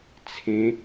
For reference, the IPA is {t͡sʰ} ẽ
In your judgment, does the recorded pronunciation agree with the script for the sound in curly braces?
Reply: yes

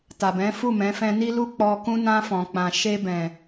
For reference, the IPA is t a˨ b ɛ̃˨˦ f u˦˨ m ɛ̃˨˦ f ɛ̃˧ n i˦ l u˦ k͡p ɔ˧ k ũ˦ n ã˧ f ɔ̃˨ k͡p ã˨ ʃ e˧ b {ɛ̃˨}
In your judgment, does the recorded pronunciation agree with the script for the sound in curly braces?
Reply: yes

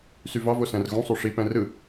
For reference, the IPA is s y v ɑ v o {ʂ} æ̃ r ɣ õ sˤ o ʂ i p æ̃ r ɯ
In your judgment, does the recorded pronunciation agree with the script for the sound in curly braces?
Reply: no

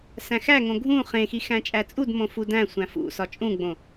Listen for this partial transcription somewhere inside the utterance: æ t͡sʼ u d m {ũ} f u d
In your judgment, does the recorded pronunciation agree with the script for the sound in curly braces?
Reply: no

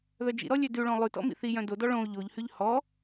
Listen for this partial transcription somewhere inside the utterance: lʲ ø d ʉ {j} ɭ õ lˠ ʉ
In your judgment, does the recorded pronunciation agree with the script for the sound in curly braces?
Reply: no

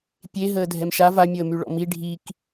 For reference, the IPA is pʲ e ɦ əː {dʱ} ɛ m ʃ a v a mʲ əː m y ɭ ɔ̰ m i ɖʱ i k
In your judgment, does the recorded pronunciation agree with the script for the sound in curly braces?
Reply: yes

